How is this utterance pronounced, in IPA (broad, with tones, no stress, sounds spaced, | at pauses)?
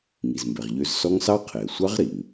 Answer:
ŋ i˩ z m b ɛ˩ ʁ ʎ ø˨˦ z s ɔ˦˥ ŋ s ɑ˦˥ qʰ e˩ ə̯ sʷ ɑ˦˥ ʁ ɾ i˩ ŋ